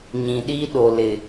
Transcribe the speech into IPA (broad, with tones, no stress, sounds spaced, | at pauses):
ɲ ĩ˨ ɗ i˦ ɗ o˨ l ɪ˨